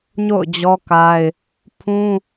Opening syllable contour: falling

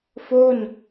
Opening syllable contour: falling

